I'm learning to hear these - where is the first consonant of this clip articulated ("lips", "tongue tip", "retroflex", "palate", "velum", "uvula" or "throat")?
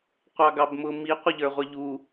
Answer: uvula